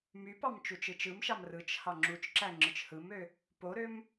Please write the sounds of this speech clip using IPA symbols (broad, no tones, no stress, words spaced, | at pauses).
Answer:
mypɑm t͡ʃut͡ʃɯt͡ʃɯmʃɑm rɯt͡ʃ hɑŋ͡ǁut͡ʃǁæ ŋ͡ǁɯt͡ʃhɯmø | poɾøm